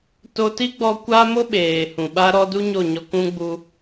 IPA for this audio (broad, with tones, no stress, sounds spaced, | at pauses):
t o˧ t i˦ ɡ͡b ɔ˧ kʷ a˦ m o˦ ɓ eː˨ h ũ˨ ɓ a˦ ɾ ɔ˦ d u˦ ɲ o˦˨ ɲ ɔ˧ k ũ˦ ɡ͡b u˦